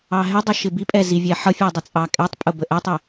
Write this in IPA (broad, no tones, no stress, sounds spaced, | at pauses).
ɑ ɦ ɪ dˤ ə ʃ ɪ b i pʼ ɛ z i vʲ ɛ ħ ʌ fʲ ɛ dˤ ɪ t͡sʼ ɑ kʼ ɛ tˤ pʼ ʊ b ə ʔ ɛ tˤ ɪ